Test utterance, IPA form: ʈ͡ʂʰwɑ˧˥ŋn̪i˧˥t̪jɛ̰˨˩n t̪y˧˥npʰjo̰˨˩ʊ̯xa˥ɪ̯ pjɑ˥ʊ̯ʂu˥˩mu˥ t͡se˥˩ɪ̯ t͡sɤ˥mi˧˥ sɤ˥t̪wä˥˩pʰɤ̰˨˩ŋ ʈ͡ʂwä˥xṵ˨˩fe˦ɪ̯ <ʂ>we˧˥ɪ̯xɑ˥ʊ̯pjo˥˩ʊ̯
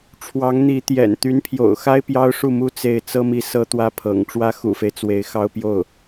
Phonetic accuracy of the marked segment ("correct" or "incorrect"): incorrect